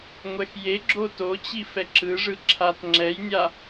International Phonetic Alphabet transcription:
ŋʷ ɛ x j e ɡ͡ǁ o t o t͡ɕ i f ɛ ǁ ɯ ʐ ɯ ǁʰ a t ŋ͡ǁ ɛ j nʲ a

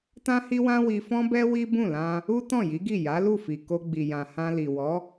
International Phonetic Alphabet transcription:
t ã˦ h i˦ w ã˦ w i˧ f ɔ̃˦ b ɛ˦ w i˦ b ũ˦˨ l ã˧ | u˦ t ɔ̃˦˨ j i˨˦ ɡ i˦˨ j a˨˦ l u˦˨ f i˨ k o˧ ɡ͡b i˨ j ã˨ h ã˧ l i˨ w ɔ˨˦

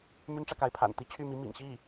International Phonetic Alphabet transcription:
m y˥ n ʈ͡ʂ ä˨ k a˧˥ ɪ̯ pʰ a̰˨˩ n t̪ i˥˧ t͡ɕʰ y˥˩ m i˧˥ m ḭ˨˩ ŋ ɕ i˥˩

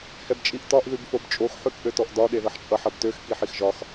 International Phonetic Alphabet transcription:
h ɛ b t͡ʃʼ i ʔ t ɒ ʔ ð ʉ b f o b t͡ʃʼ o x ħ ʉ k ʔ ø t ɔ ʔ d ɒ ɗ e ð ʌ ħ t͡ʃʼ ʌ ħ ʌ b t ø x k i ħ i x ʒ ɒ x

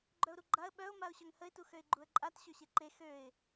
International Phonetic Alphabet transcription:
ɡ͡ǃ œ ʊ̯ ɾ u ɡ͡ǃ a ə̯ ɓ œ ʊ̯ m a ʊ̯ ɕ œ ŋ h ə ɪ̯ t u x ø ɪ̯ ɡ͡ǃ u ə̯ ǃʼ a t ɕ ø ɕ e ǃ e x ø ɪ̯

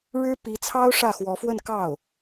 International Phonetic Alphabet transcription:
ɻ ɻ̩˥ p i˧˥ t͡sʰ ɑ˥ ʊ̯ ʂ ä˥˩ x w ɔ˧˥ f w ə˥˧ n k ɑ˥˩ ʊ̯

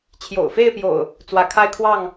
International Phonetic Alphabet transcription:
t͡ɕʰ j o̰˨˩ ʊ̯ f e˥˨ ɪ̯ p j o̰˨˩ ʊ̯ | t͡s w ä˨˦ kʰ a˦ ɪ̯ kʰ w ɑ˥˨ ŋ

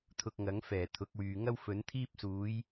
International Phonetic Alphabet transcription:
t̪ʰ ʊ˧ k̚ ŋ ɐ˨˥ ŋ f ɛː˨˩ t̪ʰ ʊ˨˥ k̚ w yː˨ ŋ ɐ˥ w f ɵ˨˥ n t̪ʰ iː˥ p̚ s uː˨˥ j

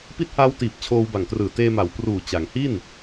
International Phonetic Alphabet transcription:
p i˦˥ t̚ h aː˦˥ w t iː˨˩ p̚ t͡ɕʰ oː˧ w b a˨˩ ŋ t r ɯː˨˩ t eː˧ m a˩˦ w p r uː˨˩ t͡ɕ a˩˦ ŋ h i˥˩ n

